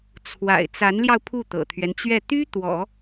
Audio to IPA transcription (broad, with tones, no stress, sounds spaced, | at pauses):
t͡sʰ w a̰˨˩ ɪ̯ t͡s a˧˥ n l j ɑ˧ ʊ̯ pʰ u˥˩ t̪ ɤ̰˨˩ t̪ʰ ɥ ɛ˦ n t͡ɕ ɥ ɛ˥˩ t̪ y˥ t̪ w ɔ̰˨˩˦